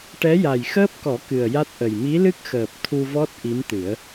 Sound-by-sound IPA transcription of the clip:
ʈ ɛ˧˥ j a˨˩ j x əː˦˥ p̚ k ɔ˨˩˦ k ɨ˨˩ ə̯ j a˦˥ t̚ ʔ ə˨˩ j m i˧˥ l ɨ˦˥ k̚ x əː˨˩ p̚ t̪ʰ u˧ v ɔ˦˥ t̚ ʔ i˧˥ m t̪ ɨ˨˩˦ ə̯

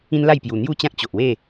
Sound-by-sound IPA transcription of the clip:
ĩ˦ n l a˥˧ j p j u˨˩ n̪ j u˥˧ t͡ɕ ã˦ k̚ t͡ɕ o˨ ʔ w e˥˧

